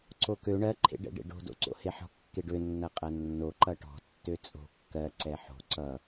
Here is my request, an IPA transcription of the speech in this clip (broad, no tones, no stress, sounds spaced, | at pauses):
ǀ o k ø ɳ ɜ ǃʰ ḛ ɖ ɛ̰ ɖ ḛ ɖ o̤ d o̰ ǀ o̰ h e ħ ɔ̤ kː e ɖ ø nː ɐ qʼ ɐ nː o ǃ ʌ ʈ ɔ̤ tː ø t͡sʼ o̤ kː ɜ ǀ ɛ ħ o̤ ǀ ʌ